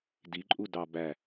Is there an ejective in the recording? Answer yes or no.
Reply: yes